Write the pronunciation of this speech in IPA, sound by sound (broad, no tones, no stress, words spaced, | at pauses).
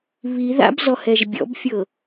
βiða̰bzɔhɛʒ bʲɔ̰bfʲɤ